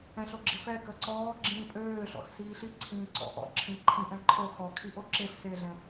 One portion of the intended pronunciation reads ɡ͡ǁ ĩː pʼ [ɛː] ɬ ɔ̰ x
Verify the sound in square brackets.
incorrect: øː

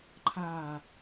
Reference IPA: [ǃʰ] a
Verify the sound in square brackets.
correct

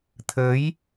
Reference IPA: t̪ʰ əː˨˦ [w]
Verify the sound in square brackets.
incorrect: j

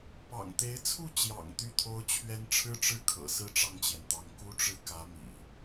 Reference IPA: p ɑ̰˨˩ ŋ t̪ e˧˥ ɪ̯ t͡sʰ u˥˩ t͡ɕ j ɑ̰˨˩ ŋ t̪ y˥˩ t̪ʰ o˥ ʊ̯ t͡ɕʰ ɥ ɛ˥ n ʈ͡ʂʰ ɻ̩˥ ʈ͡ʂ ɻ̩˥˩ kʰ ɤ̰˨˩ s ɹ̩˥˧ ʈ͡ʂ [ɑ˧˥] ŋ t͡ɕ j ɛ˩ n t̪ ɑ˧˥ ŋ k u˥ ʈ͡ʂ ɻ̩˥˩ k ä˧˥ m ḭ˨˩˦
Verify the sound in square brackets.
incorrect: ɑ˥˩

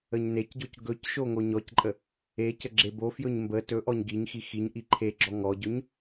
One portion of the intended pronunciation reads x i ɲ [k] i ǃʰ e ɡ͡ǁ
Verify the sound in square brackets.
incorrect: ʔ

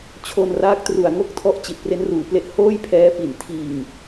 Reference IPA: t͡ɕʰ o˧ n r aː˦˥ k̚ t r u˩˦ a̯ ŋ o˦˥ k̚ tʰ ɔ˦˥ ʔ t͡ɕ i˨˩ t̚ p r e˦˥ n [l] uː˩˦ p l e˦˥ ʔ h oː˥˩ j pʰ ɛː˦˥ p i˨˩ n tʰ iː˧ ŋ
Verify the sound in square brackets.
incorrect: r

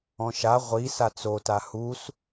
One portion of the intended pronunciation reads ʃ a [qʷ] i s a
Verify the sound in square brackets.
incorrect: ʁʷ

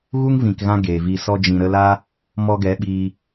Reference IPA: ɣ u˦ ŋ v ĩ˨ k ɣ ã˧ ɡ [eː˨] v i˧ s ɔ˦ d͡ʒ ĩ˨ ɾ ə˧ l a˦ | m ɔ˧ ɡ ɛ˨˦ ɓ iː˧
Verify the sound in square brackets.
correct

